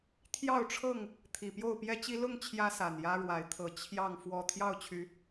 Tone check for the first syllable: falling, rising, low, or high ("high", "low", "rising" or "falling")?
falling